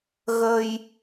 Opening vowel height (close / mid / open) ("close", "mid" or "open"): mid